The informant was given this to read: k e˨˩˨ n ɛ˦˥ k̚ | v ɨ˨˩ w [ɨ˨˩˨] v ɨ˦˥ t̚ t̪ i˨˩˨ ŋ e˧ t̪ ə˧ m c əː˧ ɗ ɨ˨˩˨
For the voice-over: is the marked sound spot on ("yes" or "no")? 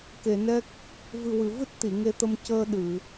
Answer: yes